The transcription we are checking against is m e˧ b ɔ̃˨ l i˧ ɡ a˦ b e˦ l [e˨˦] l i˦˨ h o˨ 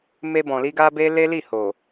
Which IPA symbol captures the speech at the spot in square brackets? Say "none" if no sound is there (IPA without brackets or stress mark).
e˦